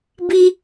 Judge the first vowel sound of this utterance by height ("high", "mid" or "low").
high